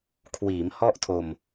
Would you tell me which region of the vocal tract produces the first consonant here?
velum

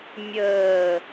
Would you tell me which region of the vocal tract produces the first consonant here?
lips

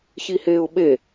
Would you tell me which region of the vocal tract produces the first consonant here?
palate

